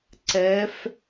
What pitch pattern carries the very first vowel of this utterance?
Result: rising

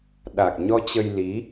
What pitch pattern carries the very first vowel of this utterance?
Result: low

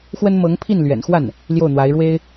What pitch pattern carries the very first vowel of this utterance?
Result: high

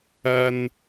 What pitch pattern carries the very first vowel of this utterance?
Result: high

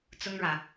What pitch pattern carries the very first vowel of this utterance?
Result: high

